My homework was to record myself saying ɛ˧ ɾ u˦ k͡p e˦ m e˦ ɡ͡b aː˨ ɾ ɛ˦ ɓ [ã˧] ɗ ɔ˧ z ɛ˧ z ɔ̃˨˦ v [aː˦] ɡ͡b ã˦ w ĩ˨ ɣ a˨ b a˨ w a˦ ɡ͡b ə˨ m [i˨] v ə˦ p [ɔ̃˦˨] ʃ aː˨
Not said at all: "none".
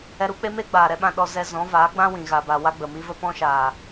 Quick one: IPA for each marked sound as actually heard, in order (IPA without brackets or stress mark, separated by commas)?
ã˧, aː˨˦, i˦, ɔ̃˦